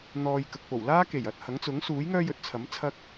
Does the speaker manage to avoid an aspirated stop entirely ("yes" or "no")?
no